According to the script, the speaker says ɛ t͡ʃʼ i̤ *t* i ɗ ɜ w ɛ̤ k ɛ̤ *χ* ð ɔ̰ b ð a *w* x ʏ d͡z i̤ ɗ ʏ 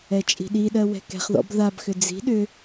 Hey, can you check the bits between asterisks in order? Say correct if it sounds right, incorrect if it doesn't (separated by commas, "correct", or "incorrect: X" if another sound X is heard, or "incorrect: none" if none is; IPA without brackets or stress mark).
incorrect: ɗ, correct, incorrect: b